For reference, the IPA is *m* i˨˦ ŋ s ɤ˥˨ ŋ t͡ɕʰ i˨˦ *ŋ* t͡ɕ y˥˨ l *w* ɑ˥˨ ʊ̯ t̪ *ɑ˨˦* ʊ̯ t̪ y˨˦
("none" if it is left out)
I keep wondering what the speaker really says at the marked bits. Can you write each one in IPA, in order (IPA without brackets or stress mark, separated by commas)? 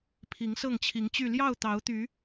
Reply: pʰ, ŋ, j, ɑ˨˦